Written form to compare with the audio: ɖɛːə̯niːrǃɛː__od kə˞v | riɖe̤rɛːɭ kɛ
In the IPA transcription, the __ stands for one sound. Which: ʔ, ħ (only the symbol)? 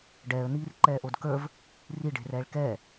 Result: ʔ